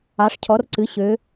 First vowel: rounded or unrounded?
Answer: unrounded